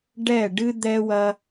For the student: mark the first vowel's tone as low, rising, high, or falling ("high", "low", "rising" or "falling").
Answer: falling